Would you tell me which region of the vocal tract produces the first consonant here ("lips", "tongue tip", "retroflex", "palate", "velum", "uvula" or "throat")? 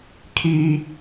velum